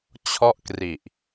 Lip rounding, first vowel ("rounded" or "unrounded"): rounded